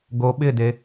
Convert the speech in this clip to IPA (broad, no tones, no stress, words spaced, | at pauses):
ɡo ɓɪde